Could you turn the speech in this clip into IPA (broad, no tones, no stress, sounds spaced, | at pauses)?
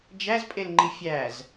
d͡ʒ æ z pʼ e l ŋ͡ǃ i fʲ æ z